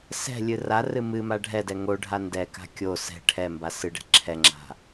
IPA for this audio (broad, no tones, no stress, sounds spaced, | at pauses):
s ɛ̤ lʲ ɨ r a r ɨ m ɨ m a ɖʱ ɛ d ɛ ŋ o ɖʱ a n d ɛ k a̤ kʲ o s ɛ̤ ʈʰ ɛ m b a s ɨ ɖ ɛ̤ ǁʰ ɛ ŋ͡ǁ a̤